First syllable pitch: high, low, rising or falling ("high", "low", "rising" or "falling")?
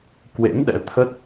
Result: rising